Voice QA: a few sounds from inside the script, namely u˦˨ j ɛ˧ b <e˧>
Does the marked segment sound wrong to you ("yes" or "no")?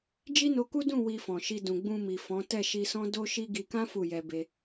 no